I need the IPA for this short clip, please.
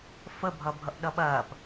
f ə bʱ ʌ bʱ ʌ ʔ ɗ ʌ ɓ ɐː p

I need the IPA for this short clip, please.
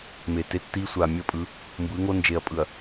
m e˨ t e˦ tː i˦ sʷ a˨ mʲ ə˦˨ pʼ ɯ˨˦ | m b ɯ˨˦ ŋ o˦ n d͡ʒ e˨ ɐ̯ pʼ ɯ˨ ɐ̯

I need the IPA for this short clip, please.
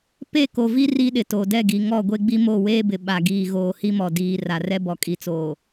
p e˦˨ k o˨ v i˦ r i˦ ɗ ɪ˨ t o˨ d ɛ˦˨ ɡ i˨ ŋ ɔ˦˨ ɡʷ e˦ ɡ͡b i˦ m o˦˨ w eː˦ b ɪ˨ ɓ a˨ ɡ iː˨ ɣ oː˨ h i˦ m ɔ˨ d iː˨ r a˨ r ɛ˦ b ɔ˨ kʼ i˨ t͡s oː˨

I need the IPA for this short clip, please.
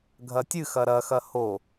ɡʱ ɐ tʲ ɨ x ɐ ɾ ɐ x ɐ h o

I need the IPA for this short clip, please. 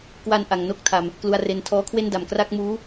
k w a˧ n ʔ a˨˩ ŋ n o˥˩ k̚ tʰ a˨˩ m | k l u˧ a̯ r e˧ n tʰ ɔː˦˥ kʰ w e˥˩ n d a˨˩ m k r a˥˩ k̚ m uː˦˥

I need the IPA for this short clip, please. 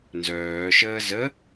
n z œː ʃ əː z ə

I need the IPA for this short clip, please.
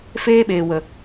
f eː˦ ɓ eː˨ w ə˨

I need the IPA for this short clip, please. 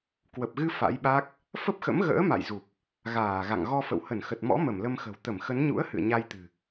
k w ə˨˩ p̚ ɣ ɨ˧ f a̰˧˥ j ɓ a˦˥ k̚ | f ə˦˥ p̚ x ə̰˧˥ m ɣ ə̰ː˧˥ m a̰˧˨ j z u˨˩ p̚ | ɣ aː˧˩ ɣ a̰˧˨ ŋ ɣ ɔ˧ f ə̰˧˨ w h ə˧˩ n x ə˨˩ t̚ m ɔ̰˧˥ m ə˧˩ m l ə˧ m x ə̤˨˩ w t̪ ə˧˩ m x ə˨˦ n ɲ ṵ˧˥ ə̯ h ɨ̰˧˨ ə̯ ɲ a˧ j t̪ ɨ̤˨˩

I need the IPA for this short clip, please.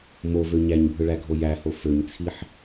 m o v ø ɲ æ ɲ bʱ ɯ ɭ æ ɡʱ o j æ h o f ø ɲ t͡sʰ i ħ

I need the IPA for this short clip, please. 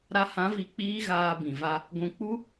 ɾ a˧ h ã˨˦ v i˨ k͡p iː˦ ɣ aː˧ b ĩ˨ v a˦ | ɡʷ ũ˨ k͡p u˦

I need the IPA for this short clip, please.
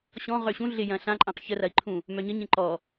ɕ ɔ̃ ʁ ø ɕ ũ ɮ ɪ j ɐ̃ ɬ ã ǃʼ ã q ç ə r ɐ i̯ ǃʰ ũ | m œ ɲ ə ɲ ẽ ǃ ɔ

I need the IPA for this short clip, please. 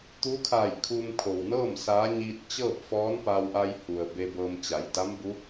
t̪ uː˧˥ kʰ aː˧˩ j kʰ uː˧ m kʰ o˩ w n ɤː˥˨ m s aː˧˥ ɲ iː˧ t̚ t͡ɕ ɤː˥˨ p̚ f ɔː˧˥ n p a˧ w ʔ a˧ j h u˩ ə̯ b e˧ b ɤː˧ m t͡ɕ a˩˧ j d a˧˥ m b u˧˥

